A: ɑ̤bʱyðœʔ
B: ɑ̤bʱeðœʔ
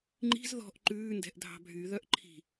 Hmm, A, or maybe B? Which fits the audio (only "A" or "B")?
A